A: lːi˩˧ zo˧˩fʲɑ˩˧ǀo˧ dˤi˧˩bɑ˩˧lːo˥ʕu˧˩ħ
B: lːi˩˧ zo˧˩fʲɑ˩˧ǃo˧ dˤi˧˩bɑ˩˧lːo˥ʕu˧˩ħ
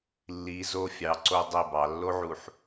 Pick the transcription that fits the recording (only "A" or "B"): A